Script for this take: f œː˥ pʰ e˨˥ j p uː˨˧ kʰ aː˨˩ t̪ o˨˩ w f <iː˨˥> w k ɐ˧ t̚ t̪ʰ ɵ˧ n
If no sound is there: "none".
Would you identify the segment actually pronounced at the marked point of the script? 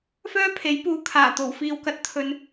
iː˧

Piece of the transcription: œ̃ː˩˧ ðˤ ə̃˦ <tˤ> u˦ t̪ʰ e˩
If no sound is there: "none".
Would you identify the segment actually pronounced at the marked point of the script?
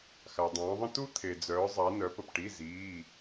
t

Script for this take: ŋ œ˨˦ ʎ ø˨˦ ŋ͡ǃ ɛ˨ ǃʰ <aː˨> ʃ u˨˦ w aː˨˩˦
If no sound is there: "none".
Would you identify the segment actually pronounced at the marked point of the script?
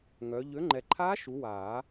aː˦˥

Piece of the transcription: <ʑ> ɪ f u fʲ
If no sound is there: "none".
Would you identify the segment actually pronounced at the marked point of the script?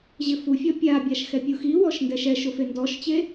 ʑ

